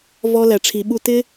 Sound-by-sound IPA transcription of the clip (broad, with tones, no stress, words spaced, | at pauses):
vɔ˦læ˧ʈ͡ʂʰi˧ɓu˦ tɪ˦